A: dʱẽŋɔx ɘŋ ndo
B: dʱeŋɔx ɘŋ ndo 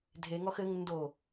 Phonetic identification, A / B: B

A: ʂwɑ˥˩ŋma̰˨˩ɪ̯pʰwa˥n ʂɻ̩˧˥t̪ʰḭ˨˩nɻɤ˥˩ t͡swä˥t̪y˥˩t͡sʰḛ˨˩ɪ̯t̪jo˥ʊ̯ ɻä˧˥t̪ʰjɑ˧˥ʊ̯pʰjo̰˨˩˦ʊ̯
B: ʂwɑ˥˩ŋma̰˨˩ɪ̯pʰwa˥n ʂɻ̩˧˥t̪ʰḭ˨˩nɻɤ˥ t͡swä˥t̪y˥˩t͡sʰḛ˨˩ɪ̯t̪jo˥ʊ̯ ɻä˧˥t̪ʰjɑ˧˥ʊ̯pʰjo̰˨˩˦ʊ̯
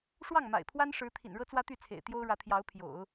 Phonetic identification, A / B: B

